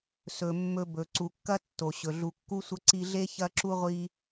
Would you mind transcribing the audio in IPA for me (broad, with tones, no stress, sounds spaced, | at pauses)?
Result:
s ɵ˩ mː ɵ˨ b ɵ˩ ǀ u˩ kː ɐ˥ tː o˩ ɕ ɵ˩ ɮ u˨ kː u˥ sʷ ɐ˦ ǀ i˦ ɮ e˥ ç ɐ˥ ǁ u˥ ʁʷ i˦